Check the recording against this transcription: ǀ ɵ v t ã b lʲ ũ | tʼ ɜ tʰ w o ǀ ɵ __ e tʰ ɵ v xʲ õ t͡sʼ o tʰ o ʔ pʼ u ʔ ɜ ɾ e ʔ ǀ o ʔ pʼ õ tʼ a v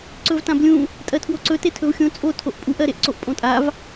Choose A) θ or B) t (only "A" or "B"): B